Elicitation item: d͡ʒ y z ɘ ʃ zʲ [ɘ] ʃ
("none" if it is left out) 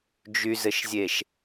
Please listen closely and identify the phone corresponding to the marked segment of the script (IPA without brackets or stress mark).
e